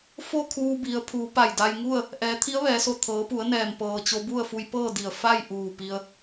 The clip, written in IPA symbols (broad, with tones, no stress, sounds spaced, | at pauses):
f o˥˨ kʰ uː˧ b i˩˧ ə̯ pʰ uː˩˧ p a˧˩ j d a˧ j ŋ u˥˨ ə̯ | ʔ ɛː˩˧ t̪ʰ i˧˥ ə̯ ʋ ɛː˩˧ s o˧˩ t̪ʰ ɤː˩˧ p u˩˧ ə̯ n ɛː˩ m p ɤː˩ t͡ɕ o˧ b u˥˨ ə̯ f u˧ j p ɤː˥˨ d i˧˩ ə̯ f a˥˨ j ʔ uː˧˩ p i˧ ə̯